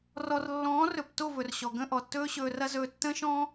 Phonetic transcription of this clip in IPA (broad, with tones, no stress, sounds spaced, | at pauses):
r ɔ˨ r lː ɔ̃ː˨˦ r ɵ˨ p t o˦˨ v ɵ˨ r ɕ ɔ˨ ɡ ə̃˦˨ ʔ ɔ˨ tː ɵː˦ ɕ ɵː˧ r ɐ˦ z ɵː˧ tː ə̃˦ ʃ ɔ̃˦